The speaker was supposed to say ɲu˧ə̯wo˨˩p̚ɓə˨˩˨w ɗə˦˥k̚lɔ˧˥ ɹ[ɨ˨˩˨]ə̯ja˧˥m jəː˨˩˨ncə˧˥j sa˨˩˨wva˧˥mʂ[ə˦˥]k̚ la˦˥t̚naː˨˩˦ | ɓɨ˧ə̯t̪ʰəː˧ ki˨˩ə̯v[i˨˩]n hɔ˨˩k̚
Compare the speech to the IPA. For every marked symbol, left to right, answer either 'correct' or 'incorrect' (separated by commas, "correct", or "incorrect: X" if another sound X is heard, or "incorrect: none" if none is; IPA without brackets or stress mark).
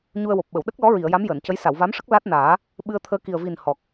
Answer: incorrect: i˨˩˨, correct, correct